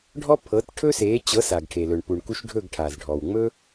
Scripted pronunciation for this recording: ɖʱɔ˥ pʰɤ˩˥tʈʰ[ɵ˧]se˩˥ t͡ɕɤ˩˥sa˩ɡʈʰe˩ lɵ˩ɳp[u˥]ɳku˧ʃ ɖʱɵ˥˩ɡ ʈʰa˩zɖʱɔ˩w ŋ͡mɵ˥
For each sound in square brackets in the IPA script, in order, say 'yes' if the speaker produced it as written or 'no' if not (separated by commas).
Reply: no, no